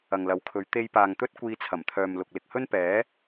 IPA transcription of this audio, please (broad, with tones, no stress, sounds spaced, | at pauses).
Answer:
ɐ˨ ŋ l ɐ˨˥ w kʰ ɵ˨˧ ɥ t̪ e˧ j p aː˨ ŋ t̪ ɵ˥ t̚ kʷ iː˧ t͡sʰ ɐ˨˩ m t̪ʰ œː˨ m l ʊ˨ k̚ l ɪ˨ k̚ h ɵ˥ n p ɛː˨˥